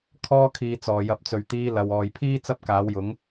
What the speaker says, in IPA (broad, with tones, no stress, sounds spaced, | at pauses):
kʰ ɔː˥ kʰ iː˧ t͡s ɔː˨ j ɐ˧ p̚ t͡s ɵ˨ ɥ t̪ iː˧ l ɐ˨ w ɔː˨ j pʰ iː˥ t͡s ɐ˥ p̚ k aː˨˥ w j ʊ˨˥ ŋ